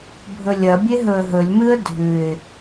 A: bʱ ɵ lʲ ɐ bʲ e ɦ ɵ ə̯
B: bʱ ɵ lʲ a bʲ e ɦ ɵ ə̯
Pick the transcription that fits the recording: A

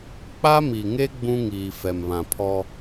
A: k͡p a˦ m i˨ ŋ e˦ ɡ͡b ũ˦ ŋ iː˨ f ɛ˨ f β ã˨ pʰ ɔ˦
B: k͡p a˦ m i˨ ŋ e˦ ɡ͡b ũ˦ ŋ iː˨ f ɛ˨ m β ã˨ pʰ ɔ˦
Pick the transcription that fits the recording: B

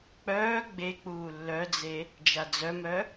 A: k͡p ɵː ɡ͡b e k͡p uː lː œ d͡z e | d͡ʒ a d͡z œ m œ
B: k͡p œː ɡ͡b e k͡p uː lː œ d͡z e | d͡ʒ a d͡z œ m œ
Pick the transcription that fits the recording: B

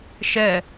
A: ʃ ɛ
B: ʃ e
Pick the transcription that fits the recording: A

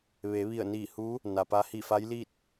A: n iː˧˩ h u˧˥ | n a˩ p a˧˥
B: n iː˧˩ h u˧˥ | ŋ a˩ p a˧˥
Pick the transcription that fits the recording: A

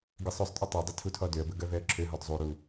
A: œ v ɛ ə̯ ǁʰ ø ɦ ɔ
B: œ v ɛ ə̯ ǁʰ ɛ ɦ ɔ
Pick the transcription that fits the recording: A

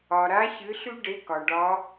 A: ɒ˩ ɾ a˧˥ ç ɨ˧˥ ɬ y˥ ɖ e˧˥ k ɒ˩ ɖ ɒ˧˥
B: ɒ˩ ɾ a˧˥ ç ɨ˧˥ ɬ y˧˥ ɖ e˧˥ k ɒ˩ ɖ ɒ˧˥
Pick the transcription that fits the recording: A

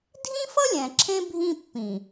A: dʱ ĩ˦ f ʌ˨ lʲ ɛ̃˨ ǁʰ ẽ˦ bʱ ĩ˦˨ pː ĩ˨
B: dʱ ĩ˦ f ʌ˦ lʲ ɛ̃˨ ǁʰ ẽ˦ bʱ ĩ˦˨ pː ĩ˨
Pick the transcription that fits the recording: B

